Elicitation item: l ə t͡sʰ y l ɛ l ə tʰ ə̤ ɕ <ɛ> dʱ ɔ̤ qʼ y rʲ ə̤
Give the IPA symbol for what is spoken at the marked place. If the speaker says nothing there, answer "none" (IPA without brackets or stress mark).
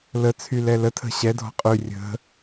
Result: ɛ